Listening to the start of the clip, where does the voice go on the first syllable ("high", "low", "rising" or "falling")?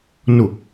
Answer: low